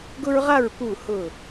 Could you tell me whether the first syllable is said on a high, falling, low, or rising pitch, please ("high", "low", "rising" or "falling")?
high